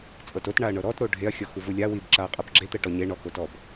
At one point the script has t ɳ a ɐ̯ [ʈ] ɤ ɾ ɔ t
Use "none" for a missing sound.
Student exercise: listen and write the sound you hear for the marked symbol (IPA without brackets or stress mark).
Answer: ɳ